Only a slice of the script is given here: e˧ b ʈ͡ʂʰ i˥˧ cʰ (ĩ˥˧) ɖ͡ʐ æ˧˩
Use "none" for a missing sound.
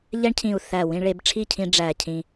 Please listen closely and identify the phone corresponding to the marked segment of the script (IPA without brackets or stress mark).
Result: ĩ˧